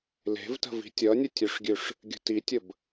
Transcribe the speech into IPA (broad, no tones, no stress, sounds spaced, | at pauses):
l e̤ v t ə̤ v i̤ tʲ ʌ nʲ ə tʲ ʉ ʂ ɡʲ ʉ ʂ | ɡʲ ə̤ t i tʲ ə b